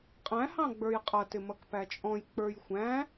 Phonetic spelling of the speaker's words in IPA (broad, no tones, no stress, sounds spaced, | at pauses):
qʼ æ̃ h ɑ̃ ɡ͡b ə˞ j qʼ ʌ t ɪ m ʌ k p æ t͡ʃʼ ɔ̃ j k͡p ə˞ j xʷ æ̃